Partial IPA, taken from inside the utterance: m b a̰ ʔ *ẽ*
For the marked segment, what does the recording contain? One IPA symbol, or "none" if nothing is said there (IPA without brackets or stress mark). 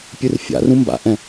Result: ɛ̃